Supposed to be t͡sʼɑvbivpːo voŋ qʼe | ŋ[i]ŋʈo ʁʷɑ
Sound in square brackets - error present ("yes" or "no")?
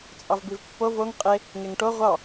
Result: yes